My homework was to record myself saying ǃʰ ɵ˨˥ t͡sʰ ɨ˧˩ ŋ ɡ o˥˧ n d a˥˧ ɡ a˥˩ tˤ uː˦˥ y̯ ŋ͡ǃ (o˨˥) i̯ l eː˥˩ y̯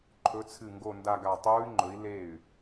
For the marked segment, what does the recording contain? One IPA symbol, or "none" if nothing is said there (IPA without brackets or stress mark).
ɵ˨˥